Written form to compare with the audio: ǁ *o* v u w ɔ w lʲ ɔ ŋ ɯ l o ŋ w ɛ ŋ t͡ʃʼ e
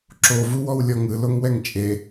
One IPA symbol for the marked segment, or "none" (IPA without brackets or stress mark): o